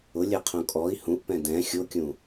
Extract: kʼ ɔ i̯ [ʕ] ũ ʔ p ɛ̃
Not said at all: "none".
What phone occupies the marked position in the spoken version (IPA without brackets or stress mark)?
h